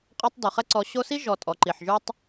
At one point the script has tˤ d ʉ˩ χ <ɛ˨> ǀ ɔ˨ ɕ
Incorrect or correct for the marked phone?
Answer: incorrect: ɛ˦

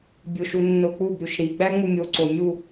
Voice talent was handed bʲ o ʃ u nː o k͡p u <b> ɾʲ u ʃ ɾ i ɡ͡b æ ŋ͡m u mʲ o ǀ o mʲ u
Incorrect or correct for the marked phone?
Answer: correct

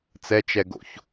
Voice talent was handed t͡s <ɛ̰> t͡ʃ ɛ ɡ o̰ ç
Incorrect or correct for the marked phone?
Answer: incorrect: ɛ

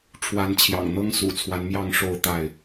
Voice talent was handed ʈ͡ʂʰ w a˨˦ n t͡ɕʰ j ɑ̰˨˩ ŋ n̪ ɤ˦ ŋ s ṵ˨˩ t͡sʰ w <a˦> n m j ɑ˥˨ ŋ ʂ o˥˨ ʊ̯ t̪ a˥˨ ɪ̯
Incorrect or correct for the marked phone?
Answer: correct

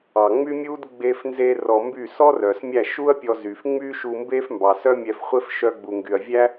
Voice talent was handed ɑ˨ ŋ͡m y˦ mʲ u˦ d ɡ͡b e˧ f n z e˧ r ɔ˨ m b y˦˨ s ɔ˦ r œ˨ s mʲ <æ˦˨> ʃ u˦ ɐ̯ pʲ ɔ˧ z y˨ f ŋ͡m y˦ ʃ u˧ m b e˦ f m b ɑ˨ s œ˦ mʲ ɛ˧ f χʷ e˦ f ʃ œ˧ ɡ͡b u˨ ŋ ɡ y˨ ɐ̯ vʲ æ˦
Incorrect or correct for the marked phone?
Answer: correct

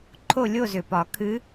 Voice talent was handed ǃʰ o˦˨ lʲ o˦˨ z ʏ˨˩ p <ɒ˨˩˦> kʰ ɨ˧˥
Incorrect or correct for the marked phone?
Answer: correct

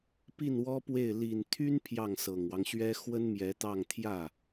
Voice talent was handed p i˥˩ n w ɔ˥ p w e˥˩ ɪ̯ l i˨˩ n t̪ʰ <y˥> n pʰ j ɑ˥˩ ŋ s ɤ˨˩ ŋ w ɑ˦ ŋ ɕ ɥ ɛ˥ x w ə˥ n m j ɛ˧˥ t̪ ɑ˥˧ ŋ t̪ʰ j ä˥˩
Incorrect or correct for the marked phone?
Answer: correct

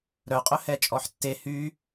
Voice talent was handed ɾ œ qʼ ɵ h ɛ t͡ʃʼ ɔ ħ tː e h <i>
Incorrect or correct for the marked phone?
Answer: incorrect: y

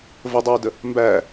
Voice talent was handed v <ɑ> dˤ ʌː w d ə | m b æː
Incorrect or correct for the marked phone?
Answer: incorrect: ə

